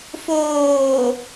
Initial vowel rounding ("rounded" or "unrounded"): rounded